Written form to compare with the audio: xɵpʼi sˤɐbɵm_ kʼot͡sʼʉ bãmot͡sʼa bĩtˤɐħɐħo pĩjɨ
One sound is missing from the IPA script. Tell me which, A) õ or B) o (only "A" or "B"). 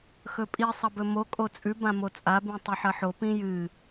B